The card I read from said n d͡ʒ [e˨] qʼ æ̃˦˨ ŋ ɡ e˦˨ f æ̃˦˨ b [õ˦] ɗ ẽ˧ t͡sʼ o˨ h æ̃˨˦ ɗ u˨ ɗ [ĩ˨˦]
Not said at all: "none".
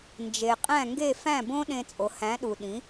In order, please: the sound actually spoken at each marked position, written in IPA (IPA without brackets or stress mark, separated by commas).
e˨, õ˦, ĩ˨˦